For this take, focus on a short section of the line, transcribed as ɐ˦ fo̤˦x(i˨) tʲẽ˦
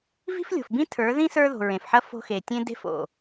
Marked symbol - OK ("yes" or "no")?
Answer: no